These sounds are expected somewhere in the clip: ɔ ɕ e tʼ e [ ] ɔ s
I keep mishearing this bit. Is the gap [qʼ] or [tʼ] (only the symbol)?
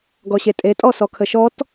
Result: tʼ